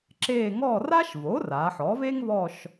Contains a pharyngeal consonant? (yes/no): yes